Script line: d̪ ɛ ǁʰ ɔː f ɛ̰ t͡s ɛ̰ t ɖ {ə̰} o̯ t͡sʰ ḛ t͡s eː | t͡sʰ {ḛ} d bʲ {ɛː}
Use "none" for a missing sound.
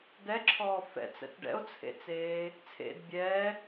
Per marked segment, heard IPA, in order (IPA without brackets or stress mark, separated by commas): ɛ̰, ḛ, ɛː